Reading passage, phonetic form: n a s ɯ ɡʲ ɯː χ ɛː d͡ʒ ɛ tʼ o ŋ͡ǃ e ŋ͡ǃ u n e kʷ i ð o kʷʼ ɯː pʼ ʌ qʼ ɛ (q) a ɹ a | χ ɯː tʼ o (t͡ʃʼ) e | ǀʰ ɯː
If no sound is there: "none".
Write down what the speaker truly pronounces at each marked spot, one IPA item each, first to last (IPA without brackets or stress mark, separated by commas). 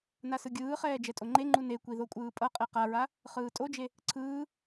q, d͡ʒ